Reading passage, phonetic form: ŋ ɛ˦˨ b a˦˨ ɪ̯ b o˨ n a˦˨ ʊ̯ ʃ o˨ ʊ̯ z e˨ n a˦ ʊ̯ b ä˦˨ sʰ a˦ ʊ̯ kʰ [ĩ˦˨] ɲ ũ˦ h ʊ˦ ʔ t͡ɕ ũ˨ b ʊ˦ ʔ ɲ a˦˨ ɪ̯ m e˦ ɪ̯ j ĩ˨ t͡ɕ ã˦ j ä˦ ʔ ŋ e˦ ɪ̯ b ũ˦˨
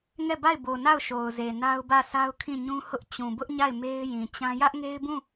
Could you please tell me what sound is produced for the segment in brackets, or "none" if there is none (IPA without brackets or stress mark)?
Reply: ĩ˦˨